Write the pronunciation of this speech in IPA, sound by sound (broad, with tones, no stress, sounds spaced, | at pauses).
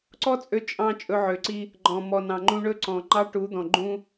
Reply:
ǀ ɔ˦ t͡sʼ ø˧ t͡ʃʼ ɑ̃˧ t͡ʃʼ ɵ˧ ʕ ø˨ ǀ i˦ | ɡ͡ǃ ɔ̃˨ m ɔ˨ n ɑ̃˨ ŋ͡ǃ ũ˧ ɳ ɵ˦ ǀ ɔ̃˨ ŋ͡ǃ ɑ˦ ʈ u˨˦ d̪ ɔ̃˨ ɡ͡ǃ ũ˦